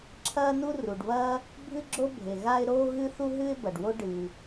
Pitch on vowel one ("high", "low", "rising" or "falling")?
high